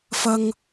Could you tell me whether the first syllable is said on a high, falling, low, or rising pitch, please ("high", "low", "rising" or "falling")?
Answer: high